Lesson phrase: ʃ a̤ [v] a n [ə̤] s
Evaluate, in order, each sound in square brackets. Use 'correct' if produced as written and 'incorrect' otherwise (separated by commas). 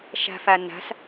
incorrect, incorrect